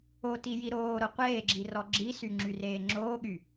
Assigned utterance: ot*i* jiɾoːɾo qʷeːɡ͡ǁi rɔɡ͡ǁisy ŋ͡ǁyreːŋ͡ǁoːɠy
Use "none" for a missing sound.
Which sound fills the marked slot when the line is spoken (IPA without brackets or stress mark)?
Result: i